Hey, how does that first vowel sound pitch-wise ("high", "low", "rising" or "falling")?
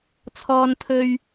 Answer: high